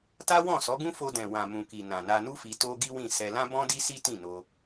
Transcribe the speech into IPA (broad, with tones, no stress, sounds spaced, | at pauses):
t a˦ w ɔ̃˦˨ s ɔ˨˦ ɡ ũ˦ f o˧ d ɛ̃˨ w ã˨ m ũ˨ k i˨ n ã˨ n a˧ n u˦ f i˧ t o˦ ɡ i˦ w ĩ˦˨ s ɛ˧ l ã˦ b ɔ̃˦ d i˦ s i˦ t ĩ˦˨ n o˧